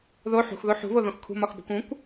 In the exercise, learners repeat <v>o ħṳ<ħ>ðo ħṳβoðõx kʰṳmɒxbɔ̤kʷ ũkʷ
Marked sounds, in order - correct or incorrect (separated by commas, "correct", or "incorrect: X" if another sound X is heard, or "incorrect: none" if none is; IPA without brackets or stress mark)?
incorrect: ð, incorrect: x